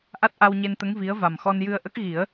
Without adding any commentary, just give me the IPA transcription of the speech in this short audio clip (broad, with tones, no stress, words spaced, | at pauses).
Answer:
ʔa˦˥t̚ʔa˧wɲe˧nt̪ə˧˥ŋ vi˧˥ə̯ va˨˩mxɔ˧n jɨ˧ə̯ʔə˦˥k̚ɣi˨˩˦ə̯